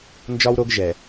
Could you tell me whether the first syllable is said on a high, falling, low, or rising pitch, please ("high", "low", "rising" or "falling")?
high